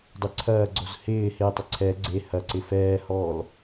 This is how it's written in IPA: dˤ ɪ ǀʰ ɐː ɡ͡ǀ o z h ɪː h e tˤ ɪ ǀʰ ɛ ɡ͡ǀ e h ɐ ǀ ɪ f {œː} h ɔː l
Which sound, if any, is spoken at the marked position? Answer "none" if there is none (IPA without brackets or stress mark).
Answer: ɛː